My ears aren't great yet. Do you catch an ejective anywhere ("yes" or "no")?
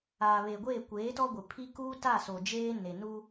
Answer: no